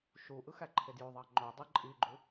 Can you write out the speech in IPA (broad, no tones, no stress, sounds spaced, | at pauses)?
ʃ u ʔ ɯ x æ ǃʰ e d j o ðˤ ɑ ŋ͡ǃ o dˤ ɯ ǃʼ i ɡ͡ǃ u